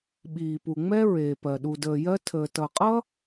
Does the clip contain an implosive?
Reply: yes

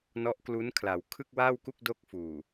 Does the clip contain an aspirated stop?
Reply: yes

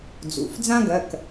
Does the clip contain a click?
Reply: no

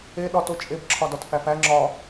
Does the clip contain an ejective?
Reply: yes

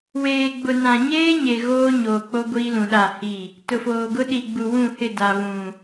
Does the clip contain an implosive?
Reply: yes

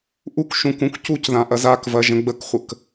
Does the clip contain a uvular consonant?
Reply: yes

